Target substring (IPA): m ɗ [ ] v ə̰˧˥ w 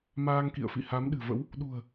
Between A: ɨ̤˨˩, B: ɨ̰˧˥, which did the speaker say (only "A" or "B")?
A